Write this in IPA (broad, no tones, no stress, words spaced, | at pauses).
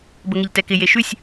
bəŋɪʎtɛkɪ jeʃʉsʲ